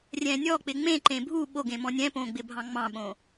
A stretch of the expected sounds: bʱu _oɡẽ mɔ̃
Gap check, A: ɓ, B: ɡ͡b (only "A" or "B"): A